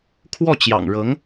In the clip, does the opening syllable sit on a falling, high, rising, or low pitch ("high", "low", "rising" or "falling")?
falling